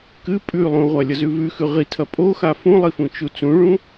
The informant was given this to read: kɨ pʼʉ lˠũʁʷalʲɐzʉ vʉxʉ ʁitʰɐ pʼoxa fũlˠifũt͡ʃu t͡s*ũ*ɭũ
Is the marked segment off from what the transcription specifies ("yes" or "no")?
no